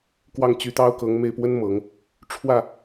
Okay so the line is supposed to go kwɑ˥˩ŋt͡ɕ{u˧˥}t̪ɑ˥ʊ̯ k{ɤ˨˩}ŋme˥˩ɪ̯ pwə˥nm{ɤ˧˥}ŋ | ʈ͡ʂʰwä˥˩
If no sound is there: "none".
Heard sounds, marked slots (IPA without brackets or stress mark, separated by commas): y˧˥, ɤ˧˥, ɤ˨˩˦